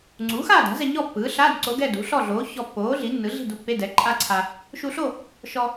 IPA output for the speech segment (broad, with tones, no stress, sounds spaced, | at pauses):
ŋ͡ǀ uː˩˥ x aː˥˨ d a̤˩˥ z ɛ˧ ɲ ɔ˥˨ pː ɯː˩˥ ɬ aː˧˥˧ d ǀ o˧˥ ɡ ɛ˥˨ d ṳ˩˥ ɬ ɔ˥˨ ɮ oː˩˥ ç ɔ˧ pː oː˩˥ ɮ i˩˥ nː ɯ˩˥ ɮ i̤˥˨ d u˧ pː e˧˥˧ d ɛ˩˥ ǃʼ a˥˨ ǀʰ a˧ | ʃ u˧ ɬ o˥˨ | ʃ ɔ˧